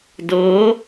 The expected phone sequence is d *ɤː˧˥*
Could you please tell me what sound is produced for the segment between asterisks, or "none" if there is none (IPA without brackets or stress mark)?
ɤː˧˥